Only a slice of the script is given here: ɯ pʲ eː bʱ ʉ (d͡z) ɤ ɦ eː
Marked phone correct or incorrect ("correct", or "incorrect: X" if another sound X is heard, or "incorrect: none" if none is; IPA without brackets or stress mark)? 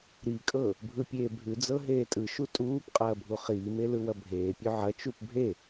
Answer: correct